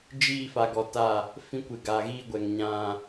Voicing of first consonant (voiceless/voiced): voiced